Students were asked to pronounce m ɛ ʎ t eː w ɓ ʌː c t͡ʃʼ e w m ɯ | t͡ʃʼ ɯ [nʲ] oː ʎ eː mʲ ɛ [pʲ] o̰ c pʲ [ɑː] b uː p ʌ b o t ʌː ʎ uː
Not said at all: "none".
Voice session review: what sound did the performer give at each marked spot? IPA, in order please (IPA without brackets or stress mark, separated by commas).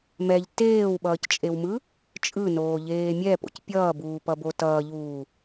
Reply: n, p, ʌː